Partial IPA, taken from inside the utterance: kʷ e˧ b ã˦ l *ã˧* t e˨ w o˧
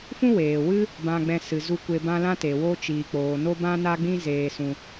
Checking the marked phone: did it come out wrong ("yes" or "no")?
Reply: yes